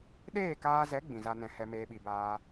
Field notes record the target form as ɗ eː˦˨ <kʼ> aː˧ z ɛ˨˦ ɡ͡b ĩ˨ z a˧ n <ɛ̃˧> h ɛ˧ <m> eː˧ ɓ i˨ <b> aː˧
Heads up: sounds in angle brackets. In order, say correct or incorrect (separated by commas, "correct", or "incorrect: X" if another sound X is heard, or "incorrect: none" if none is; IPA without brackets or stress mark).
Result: incorrect: k, correct, correct, correct